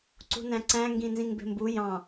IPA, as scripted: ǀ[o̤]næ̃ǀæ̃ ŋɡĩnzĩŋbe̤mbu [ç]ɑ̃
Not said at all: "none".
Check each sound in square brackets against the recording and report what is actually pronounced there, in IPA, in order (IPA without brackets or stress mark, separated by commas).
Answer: ṳ, j